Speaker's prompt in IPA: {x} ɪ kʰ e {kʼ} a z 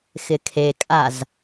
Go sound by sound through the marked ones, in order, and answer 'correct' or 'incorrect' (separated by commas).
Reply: correct, correct